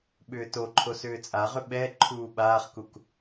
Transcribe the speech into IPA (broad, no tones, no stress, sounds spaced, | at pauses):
ɓ ʏː t o ǃʰ o s ʏː t͡sʼ a ʁ ʏ ɓ ɛ ǃʰ uː ɓ aː χ k u k